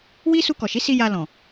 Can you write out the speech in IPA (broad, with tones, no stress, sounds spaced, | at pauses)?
w i˦ s u˧ k ɔ˨ ʃ i˨˦ s i˧ j a˧ l ɔ̃˨